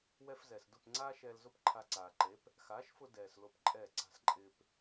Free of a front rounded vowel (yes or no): yes